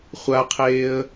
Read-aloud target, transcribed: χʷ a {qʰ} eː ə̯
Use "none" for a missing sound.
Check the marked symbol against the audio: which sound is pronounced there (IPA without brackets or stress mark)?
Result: qʰ